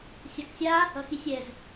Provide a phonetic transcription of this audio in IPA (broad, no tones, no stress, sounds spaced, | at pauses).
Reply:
sʲ a k sʲ a | ʌ x i sʲ ɛ z